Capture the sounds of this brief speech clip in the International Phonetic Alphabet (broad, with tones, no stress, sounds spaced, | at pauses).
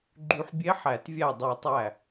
ɡ͡ǃ y˧ ħ bʲ e˧˥ ħ æ˨˩˦ t vʲ æ˧˩ dˤ y˨˩˦ tˤ æ˧˩